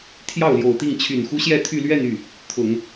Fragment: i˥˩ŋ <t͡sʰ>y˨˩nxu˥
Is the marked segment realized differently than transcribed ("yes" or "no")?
yes